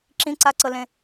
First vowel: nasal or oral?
nasal